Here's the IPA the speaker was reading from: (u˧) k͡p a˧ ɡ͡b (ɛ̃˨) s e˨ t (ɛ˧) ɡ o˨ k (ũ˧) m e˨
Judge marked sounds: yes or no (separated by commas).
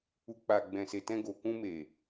yes, yes, no, yes